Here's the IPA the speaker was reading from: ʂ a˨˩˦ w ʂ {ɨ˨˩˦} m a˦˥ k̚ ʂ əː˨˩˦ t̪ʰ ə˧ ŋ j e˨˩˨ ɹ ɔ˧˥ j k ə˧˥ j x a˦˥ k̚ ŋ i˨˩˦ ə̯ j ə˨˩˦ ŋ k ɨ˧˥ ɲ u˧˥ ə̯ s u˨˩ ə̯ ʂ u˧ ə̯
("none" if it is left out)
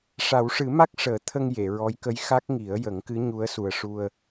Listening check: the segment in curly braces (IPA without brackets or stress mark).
ɨ˨˩˦